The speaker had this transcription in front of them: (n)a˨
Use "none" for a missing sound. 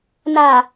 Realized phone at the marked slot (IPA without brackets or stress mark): n